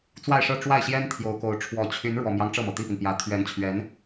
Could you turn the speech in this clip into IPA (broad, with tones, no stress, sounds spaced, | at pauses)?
t͡s w a˥˧ ɪ̯ ʂ ɤ˥˧ ʈ͡ʂ w a˥˩ ɪ̯ ɕ j ɛ˥ n t̪ʰ j o˧˥ ʊ̯ k o˧˥ ʊ̯ ʈ͡ʂʰ w ɔ˨˩ t͡ɕʰ y˧˥ n ɻ w ɔ˨˩ m j ɑ˦ ŋ ʈ͡ʂ ɤ˥˩ m ɤ˩ t̪ i˥˩ p i˩ n p j ä˨˩ t̪ʰ ɥ ɛ˧˥ n t͡ɕʰ ɥ ɛ˧˥ n